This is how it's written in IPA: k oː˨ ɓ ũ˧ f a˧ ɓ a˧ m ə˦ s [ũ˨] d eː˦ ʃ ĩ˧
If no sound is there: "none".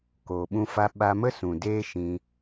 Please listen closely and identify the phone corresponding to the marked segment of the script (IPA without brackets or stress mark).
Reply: ũ˨